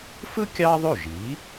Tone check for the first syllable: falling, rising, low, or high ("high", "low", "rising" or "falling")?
high